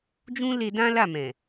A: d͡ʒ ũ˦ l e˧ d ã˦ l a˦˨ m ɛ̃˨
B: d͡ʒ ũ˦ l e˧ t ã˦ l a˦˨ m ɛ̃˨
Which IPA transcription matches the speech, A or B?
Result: A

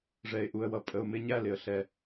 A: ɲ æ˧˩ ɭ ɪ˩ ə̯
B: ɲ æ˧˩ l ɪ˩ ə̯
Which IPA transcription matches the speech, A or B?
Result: B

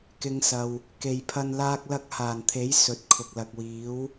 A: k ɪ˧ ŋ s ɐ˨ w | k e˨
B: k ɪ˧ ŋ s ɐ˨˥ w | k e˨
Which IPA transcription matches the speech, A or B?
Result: A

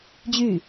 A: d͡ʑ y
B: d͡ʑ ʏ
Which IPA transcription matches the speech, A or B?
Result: A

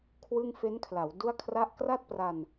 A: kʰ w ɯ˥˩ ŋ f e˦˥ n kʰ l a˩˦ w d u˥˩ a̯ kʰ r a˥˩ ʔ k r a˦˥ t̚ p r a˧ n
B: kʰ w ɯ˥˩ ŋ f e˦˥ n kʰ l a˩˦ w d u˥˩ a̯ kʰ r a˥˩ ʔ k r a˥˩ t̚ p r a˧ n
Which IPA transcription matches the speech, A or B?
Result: B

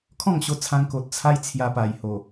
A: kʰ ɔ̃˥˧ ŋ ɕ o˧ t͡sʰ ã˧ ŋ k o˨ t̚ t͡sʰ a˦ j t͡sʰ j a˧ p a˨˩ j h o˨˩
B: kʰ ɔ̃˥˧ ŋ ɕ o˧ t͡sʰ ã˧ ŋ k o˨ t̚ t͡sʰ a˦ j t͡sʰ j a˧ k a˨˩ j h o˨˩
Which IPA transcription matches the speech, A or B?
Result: A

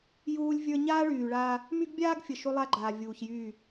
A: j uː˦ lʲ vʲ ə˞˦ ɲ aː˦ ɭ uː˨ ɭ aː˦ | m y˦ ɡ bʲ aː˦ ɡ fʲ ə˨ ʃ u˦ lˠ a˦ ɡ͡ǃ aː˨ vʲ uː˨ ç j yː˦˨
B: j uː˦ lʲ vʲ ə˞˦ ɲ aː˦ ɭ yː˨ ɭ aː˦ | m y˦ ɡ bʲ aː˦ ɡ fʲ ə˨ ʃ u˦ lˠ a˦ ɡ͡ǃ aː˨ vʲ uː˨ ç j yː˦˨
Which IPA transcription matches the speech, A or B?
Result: B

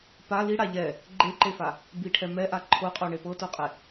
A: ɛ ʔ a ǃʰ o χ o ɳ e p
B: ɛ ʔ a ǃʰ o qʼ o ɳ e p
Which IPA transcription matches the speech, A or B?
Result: B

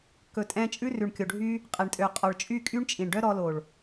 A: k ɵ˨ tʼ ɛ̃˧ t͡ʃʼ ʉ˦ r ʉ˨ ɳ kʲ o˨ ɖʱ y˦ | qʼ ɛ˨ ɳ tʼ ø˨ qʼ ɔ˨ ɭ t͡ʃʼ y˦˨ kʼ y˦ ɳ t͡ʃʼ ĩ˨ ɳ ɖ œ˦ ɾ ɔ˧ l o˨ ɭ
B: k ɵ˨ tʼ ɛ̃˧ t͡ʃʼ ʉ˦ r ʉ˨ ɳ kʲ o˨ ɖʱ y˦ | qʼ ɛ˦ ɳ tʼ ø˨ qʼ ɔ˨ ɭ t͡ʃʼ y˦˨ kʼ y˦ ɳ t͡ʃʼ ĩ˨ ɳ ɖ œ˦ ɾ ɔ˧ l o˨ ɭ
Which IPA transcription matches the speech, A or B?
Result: A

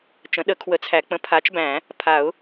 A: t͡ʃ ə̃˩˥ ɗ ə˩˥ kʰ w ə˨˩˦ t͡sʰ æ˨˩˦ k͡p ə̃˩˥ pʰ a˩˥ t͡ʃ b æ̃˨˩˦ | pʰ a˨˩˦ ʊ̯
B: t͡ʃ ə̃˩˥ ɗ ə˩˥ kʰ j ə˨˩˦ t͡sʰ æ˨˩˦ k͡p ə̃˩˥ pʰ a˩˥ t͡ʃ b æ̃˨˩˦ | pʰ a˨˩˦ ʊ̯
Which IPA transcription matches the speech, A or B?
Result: A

